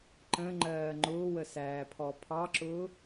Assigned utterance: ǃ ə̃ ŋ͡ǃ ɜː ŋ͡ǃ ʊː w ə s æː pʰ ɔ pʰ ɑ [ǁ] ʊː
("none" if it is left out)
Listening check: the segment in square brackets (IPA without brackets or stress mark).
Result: ǁ